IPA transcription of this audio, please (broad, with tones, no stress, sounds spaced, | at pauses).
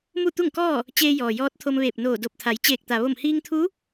m u˥˨ t̪ u˥˨ ŋ k ɔː˥˨ | t͡ɕ eː˧ j ɔː˩ j ɔː˧˥ t̚ t̪ʰ o˧ m ʋ eː˧˩ p̚ n oː˧˩ d o˧˩ p̚ t̪ʰ a˩˧ j t͡ɕ eː˧˩ k̚ t̪ a˩ ʋ o˧˩ m h iː˧ ŋ t̪ʰ u˧˥